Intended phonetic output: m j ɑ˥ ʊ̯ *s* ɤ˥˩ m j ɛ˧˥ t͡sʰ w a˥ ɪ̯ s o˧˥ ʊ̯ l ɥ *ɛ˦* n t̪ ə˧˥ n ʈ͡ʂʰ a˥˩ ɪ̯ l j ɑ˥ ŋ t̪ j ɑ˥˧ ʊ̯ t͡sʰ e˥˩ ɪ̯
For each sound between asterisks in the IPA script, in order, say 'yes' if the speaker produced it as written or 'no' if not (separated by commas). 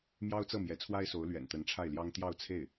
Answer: no, no